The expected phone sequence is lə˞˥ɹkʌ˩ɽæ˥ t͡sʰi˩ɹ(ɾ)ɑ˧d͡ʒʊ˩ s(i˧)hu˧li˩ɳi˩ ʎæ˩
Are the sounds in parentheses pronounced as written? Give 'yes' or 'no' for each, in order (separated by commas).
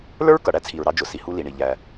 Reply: yes, no